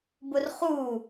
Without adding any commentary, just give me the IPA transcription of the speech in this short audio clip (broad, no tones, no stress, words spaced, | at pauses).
bʊrχu